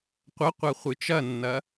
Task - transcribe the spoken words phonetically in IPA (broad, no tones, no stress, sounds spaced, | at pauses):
qʷ ɐ qʷ ɐ χʷ ɨ t͡ʃ ɐ nː ɐ